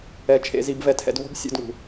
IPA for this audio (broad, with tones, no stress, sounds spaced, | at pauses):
ɛ˨˦ t͡ʃʰ ḛ˧ z i˧ b v ɛ˧ tʰ ɛ̰˧ d v ɔ̤˦ b sʲ ṵ˦˨ d ŋ ṳ˨